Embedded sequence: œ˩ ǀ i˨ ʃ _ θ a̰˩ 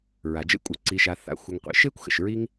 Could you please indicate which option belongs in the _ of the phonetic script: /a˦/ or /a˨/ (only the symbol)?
a˨